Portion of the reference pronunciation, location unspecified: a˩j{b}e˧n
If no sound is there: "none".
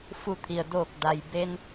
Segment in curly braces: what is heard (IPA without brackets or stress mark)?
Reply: b